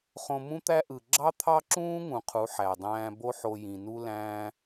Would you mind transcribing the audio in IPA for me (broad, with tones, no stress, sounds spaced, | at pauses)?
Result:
χ õ˧ m ũ˦ t̪ æ˦ ʔ ɯ˨ ɡ͡ǁ ɑ˦ t̪ʰ ɑ˦ ǁ ũː˦ ŋ ũ˨ qʰ u˨˦ ħ æ˨ dˤ æ̃ː˧ b o˦ ħ o˧ j ĩ˨ n u˦ l æ̃ː˧